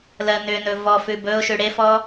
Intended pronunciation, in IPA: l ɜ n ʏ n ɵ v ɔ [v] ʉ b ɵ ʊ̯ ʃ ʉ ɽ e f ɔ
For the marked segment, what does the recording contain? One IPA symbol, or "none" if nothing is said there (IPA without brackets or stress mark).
f